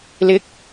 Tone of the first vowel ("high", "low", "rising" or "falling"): rising